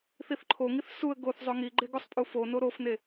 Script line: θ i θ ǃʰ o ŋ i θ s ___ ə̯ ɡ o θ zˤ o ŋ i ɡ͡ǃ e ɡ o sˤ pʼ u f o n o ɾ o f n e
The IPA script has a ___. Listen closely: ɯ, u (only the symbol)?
u